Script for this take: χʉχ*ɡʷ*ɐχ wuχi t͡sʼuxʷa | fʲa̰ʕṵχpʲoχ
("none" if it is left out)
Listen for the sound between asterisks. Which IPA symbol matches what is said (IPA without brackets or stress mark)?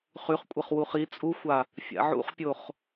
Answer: kʷʼ